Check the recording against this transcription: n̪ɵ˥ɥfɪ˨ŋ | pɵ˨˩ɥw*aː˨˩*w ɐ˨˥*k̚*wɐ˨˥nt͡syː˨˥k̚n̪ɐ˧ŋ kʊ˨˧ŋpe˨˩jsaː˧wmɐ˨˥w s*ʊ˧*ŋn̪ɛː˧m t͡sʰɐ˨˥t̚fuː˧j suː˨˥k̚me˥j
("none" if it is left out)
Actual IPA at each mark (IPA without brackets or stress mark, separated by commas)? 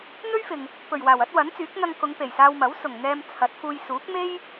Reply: aː˨˩, t̚, ʊ˨˩